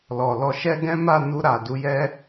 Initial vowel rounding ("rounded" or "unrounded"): rounded